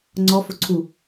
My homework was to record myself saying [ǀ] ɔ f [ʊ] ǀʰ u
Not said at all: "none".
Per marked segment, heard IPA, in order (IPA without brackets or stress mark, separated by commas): ŋ͡ǀ, ʊ